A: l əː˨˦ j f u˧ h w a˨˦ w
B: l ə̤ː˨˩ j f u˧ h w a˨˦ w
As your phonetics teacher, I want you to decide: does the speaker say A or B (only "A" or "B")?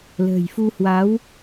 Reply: B